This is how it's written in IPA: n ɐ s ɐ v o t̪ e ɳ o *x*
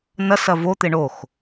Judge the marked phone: correct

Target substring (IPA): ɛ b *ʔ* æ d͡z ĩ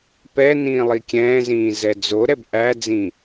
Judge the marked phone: correct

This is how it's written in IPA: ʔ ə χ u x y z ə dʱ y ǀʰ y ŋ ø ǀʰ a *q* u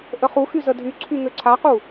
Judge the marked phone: correct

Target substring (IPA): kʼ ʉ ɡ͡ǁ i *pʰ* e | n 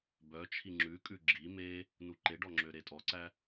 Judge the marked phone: incorrect: m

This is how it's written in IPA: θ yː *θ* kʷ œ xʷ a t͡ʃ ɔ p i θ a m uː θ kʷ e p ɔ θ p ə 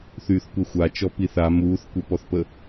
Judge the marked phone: correct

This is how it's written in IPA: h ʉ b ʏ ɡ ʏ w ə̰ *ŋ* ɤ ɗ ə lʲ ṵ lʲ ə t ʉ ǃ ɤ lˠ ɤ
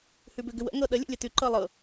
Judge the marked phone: correct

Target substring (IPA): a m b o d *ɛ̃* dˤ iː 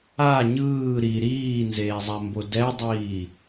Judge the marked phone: incorrect: ɛ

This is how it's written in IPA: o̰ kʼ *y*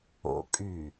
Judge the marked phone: correct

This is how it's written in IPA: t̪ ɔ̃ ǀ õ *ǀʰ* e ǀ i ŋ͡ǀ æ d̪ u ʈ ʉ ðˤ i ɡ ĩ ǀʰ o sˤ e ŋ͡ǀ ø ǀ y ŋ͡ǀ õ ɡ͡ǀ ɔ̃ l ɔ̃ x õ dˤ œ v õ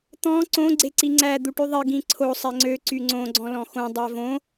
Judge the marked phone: incorrect: ɡ͡ǀ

